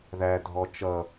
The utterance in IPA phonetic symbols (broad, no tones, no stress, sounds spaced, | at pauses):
ð æ dʱ ɔ t͡ʃ ʌ